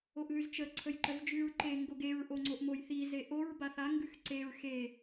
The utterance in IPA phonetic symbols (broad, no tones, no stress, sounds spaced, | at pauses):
o ʔ ð ʉ z t͡ʃ ə ǀʰ ə j ǃ ə z d͡ʒ ʉ ɹ ǃ e ŋ ɡ o ɡ e ɹ ʔ o ŋ͡ǀ o ʔ m o j θ i z e ʔ o ɹ b a θ a ŋ ɡ ʉ x ǀ e ɹ x e